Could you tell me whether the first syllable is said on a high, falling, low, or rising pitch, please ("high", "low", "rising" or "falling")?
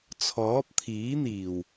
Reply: rising